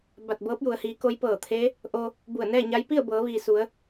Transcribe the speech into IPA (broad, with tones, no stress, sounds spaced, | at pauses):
b a˧˩ t̚ b ɤː˧˥ p̚ j u˩˧ ə̯ h iː˩˧ k o˧˥ j p ɤː˧˩ t̪ʰ e˧˥ | ʔ o˧ | b u˧˩ ə̯ n ɛː˥˨ ɲ a˧˥ j p i˥˨ ə̯ b ɤː˩˧ ʋ iː˩ s u˩˧ ə̯